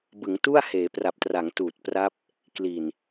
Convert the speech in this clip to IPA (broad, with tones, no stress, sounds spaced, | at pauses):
b ɯ˩˦ ŋ t u˥˩ a̯ h eː˩˦ p r a˨˩ p̚ t r a˩˦ ŋ t uː˨˩ t̚ p r a˦˥ p̚ | k l i˨˩ n